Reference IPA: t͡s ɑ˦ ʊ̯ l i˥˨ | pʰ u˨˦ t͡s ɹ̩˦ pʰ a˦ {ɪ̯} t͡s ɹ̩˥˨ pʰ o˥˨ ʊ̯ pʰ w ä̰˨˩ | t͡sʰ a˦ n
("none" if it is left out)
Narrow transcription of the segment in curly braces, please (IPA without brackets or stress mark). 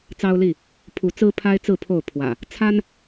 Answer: ɪ̯